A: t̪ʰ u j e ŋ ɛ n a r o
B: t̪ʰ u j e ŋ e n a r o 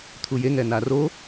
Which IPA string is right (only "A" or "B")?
A